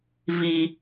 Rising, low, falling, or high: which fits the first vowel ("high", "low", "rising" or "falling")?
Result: low